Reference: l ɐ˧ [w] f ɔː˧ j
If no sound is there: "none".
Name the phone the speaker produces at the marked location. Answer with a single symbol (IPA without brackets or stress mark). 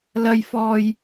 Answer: j